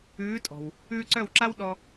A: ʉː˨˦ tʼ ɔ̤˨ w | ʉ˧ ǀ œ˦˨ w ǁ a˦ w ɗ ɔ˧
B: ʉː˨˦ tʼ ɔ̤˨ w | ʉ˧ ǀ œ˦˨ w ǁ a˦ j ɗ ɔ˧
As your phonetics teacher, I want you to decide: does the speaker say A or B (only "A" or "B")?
A